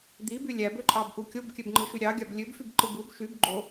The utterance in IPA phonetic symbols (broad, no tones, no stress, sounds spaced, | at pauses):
d̪ i b y lʲ æ b ø ǃʼ ɑ b ʔ u kʲ o b kʲ ø b ŋ͡ǃ ɯ ʃ y ɾʲ ɑ ɡʲ ɑ b lʲ ø b f y b ǃ ɯ b u b ʃ y b ɡ͡ǃ o